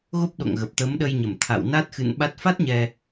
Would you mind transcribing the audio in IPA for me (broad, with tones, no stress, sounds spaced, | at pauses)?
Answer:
ɣ o˦˥ p̚ ɗ o̰˧˨ ŋ ɣ ə˨˩ p̚ t̪ ə˨˦ m ɗ ə˧ j ɲ ə˧˩ m t̪ʰ a̰˧˨ w n a˦˥ t̚ x ɨ̰˧˨ n ɓ a˦˥ t̚ f a˦˥ t̚ ɲ ɛ˧